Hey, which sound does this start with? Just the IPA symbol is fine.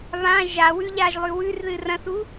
β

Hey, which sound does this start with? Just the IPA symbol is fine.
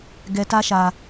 ɡ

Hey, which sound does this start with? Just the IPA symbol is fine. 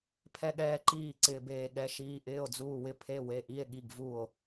pʰ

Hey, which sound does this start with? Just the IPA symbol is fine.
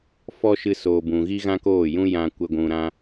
f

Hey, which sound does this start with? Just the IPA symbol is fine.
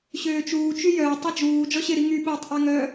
ɕ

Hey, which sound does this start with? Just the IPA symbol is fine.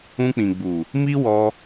ũ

